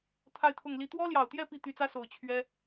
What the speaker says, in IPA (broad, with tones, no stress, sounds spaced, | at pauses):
t̪ʰ a˥˧ ɪ̯ t̪ʰ ʊ˥˩ ŋ l i˥ t̪ w ɔ˥ l j ɑ˨˩ ʊ̯ t̪ j ɛ˥˧ p i˥˩ t̪ y˧˥ t͡s ä˥ s o˨˩ ʊ̯ t͡ɕʰ ɥ ɛ˥